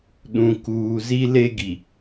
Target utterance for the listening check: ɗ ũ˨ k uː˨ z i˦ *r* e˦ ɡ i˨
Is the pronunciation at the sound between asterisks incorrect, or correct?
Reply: incorrect